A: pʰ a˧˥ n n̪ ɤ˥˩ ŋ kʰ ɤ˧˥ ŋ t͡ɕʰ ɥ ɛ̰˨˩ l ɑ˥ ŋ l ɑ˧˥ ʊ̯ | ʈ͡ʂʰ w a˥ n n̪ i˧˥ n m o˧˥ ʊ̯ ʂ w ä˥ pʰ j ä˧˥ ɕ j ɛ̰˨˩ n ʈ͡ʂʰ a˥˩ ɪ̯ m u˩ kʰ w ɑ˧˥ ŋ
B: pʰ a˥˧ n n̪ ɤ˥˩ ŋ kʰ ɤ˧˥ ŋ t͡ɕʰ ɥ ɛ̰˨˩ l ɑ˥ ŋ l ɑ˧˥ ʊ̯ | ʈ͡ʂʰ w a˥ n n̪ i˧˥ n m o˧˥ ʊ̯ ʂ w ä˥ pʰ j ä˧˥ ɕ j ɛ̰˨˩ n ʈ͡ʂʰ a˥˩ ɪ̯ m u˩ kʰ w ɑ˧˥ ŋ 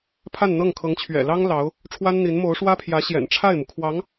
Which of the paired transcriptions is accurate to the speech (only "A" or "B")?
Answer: B